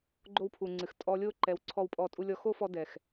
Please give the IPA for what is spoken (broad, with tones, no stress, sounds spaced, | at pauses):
ɡ͡ǃ o˦ w pʰ u˨ ŋ͡ǀ ɨ˨ x tʼ ɔ˧ lʲ o˦ ǃ ɛ˨˦ w ǀʰ ɔ˦˨ w pʼ ɔ˦˨ tʼ u˦ lʲ ɔ˧ x o˦ f ɔ˧ d ɛ˨ x